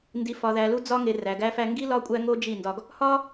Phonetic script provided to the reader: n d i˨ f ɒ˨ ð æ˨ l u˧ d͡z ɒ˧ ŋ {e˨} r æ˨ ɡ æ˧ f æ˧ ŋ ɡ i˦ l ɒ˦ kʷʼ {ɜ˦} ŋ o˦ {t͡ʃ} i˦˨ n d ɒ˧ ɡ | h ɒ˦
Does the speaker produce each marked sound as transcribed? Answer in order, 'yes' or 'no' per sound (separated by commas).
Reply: yes, no, no